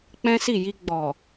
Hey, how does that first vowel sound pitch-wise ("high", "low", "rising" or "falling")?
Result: high